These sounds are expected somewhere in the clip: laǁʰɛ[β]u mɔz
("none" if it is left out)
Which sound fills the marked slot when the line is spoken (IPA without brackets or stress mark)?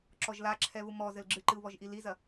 β